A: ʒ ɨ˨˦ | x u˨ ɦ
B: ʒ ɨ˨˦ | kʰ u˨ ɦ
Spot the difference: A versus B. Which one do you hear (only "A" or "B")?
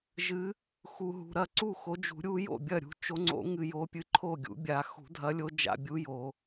A